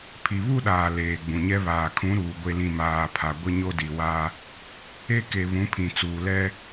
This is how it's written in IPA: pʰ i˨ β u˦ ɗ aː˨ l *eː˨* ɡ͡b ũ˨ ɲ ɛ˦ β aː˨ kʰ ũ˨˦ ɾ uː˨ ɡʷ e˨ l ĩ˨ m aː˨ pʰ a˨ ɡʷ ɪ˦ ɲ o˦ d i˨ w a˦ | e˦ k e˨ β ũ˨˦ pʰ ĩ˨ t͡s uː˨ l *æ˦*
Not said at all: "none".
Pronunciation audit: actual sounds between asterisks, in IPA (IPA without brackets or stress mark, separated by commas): eː˨, ɛ˦